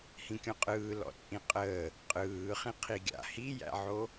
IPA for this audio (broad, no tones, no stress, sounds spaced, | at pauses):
h ĩ kʲ ɔ̃ qʼ ɯː l ɔ̰ t͡sʼ ĩ qʼ əː | qʼ ɯː χ ĩ qʰ i ɡʲ a̰ h i j æ̰ ʕ o